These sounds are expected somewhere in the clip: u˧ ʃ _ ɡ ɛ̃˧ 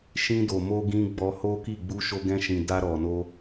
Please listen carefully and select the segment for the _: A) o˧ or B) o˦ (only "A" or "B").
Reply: A